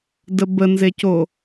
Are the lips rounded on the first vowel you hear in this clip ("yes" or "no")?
no